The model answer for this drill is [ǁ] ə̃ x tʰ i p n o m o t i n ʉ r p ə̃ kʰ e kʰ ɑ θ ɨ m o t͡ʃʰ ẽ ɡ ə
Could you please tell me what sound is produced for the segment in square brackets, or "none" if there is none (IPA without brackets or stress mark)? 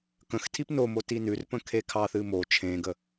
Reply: k